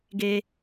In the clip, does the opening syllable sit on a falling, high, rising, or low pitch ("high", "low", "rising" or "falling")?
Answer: high